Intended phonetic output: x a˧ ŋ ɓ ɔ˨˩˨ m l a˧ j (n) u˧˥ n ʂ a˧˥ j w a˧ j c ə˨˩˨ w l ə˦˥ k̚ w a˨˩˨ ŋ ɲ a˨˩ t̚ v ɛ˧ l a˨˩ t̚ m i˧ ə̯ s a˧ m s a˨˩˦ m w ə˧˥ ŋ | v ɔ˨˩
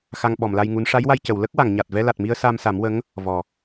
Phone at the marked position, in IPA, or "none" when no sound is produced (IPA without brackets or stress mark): ŋ